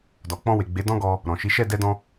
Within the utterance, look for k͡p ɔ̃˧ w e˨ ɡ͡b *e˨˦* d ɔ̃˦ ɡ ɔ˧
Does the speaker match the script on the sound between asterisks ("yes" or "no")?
yes